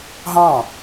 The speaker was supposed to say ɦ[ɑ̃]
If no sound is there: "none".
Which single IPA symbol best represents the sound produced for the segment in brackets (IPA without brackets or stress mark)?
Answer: ɑ̃